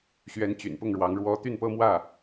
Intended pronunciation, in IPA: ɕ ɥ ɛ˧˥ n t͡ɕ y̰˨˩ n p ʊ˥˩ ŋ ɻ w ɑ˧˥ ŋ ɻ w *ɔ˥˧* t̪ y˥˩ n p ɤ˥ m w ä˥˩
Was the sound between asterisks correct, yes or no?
no